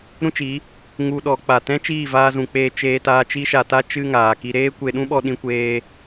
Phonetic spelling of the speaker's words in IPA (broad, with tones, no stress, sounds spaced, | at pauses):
ɾ ũ˦ t͡ʃ i˨˦ | ŋ u˧ ɗ ɔ˨˦ k͡p a˨ t ɛ̃˦ t͡ʃ iː˦˨ v aː˧ z ũ˨ k͡p eː˧ t͡ʃ eː˧ t aː˧ t͡ʃ i˦ ʃ a˧ t a˦ t͡ʃ ɨ˦ ŋ aː˨ k i˧ ɾ eː˦ kʷ e˧ ɗ ũ˦ ɓ ɔ˧ ɗ ĩ˧ kʷ eː˦